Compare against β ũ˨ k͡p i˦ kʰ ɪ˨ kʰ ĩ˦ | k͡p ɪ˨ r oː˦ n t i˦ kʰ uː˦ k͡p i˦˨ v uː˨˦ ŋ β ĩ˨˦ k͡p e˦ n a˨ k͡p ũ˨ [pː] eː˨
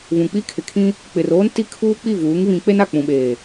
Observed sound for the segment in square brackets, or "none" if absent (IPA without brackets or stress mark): ɓ